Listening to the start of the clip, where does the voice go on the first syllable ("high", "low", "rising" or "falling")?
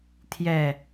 low